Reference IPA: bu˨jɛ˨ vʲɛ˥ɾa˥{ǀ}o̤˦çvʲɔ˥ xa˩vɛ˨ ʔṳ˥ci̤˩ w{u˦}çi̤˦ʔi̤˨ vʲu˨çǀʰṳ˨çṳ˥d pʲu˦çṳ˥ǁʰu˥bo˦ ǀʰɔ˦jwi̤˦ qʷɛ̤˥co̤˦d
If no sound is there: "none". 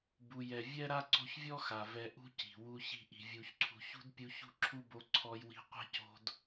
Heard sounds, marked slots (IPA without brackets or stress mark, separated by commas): ǀ, u˦